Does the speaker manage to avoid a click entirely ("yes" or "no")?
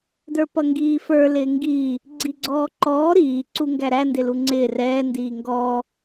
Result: no